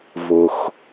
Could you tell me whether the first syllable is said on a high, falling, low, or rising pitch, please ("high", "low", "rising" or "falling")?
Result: low